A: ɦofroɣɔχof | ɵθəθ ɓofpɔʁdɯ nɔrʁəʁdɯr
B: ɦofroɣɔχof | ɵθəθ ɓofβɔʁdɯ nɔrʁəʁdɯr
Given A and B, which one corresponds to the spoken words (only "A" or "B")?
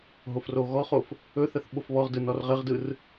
B